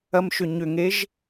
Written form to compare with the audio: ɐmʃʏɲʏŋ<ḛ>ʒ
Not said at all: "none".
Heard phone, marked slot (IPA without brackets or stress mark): e